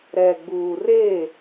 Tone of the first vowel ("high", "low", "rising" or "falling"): low